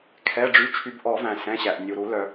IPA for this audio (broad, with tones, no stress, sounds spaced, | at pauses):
kʰ ɛ˩˧˩ ɖ͡ʐ y˩˧˩ t͡ʃʰ y˨˩˦ b ʔ ɔ˨˩˦ v æ̃˩ s ɛ̃˩˧˩ ɕ æ˩ ʔ nʲ u˩ ɾ u˨˩˦ l œ˩